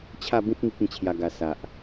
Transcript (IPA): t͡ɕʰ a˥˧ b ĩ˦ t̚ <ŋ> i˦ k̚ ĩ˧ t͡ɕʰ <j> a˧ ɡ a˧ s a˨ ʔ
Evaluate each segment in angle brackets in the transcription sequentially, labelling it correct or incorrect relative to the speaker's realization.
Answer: correct, correct

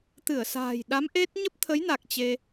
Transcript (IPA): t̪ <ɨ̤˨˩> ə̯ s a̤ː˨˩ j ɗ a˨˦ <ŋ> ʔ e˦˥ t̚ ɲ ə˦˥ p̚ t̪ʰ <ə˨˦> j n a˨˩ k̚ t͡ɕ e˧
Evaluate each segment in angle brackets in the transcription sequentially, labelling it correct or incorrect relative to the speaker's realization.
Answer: incorrect, incorrect, correct

